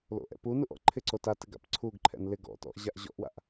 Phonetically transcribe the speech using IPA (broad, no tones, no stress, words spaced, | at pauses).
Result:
lo̰ʔɛ̰punuʔ ɔ̰ǃʰɪǀo tatɪ ɡa̰pǀʰuɡǃʰɛ̰n lɪ ɡɔ̰tɔ̰ʔ ʑaʔʑɔ̰ʔwa̰ʔ